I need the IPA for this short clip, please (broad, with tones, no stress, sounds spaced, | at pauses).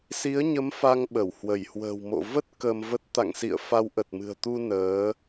s i˨˦ ə̯ ɲ ə˨˦ m f a˧ ŋ ɓ ə˧˩ w h w ə˧˩ j h w ə̤ː˨˩ w m o̰˧˨ v ə˦˥ t̚ k ə˧ m v ə˦˥ t̚ t̪ a̰˧˨ ŋ s ḭ˧˨ ə̯ f a˨˦ w ʔ ə˨˩ t̚ m ɨ̤˨˩ ə̯ t̪ u˧ n əː˨˦